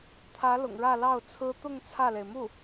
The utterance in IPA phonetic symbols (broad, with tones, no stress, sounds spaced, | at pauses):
t̪ʰ ä˧˥ l ʊ̰˨˩ ŋ ɻ ä˥˧ l ɑ˥˩ ʊ̯ t͡sʰ ɹ̩˥ t̪ ʊ˥˧ ŋ t͡sʰ ä˥˩ l e˩ ɪ̯ m u˥˩